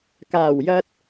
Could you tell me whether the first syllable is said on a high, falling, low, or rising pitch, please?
low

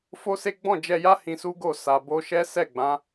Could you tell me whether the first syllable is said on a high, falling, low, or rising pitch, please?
high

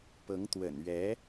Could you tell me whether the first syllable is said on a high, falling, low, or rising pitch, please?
rising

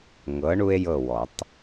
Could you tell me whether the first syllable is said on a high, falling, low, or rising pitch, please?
rising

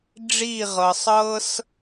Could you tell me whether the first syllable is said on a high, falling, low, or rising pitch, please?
falling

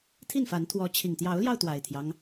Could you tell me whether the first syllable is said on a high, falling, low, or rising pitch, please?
falling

